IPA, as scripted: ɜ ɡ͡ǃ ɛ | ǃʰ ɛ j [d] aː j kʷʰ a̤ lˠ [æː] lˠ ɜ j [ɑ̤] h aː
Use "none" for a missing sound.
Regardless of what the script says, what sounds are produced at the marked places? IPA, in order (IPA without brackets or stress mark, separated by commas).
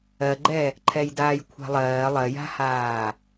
d, ɜː, a̤